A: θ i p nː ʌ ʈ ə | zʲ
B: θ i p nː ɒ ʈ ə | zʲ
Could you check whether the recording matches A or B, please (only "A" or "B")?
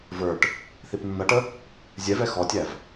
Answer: A